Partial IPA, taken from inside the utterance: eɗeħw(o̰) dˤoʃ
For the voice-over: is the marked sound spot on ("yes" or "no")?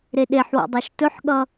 yes